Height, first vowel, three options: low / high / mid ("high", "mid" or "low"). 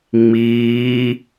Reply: high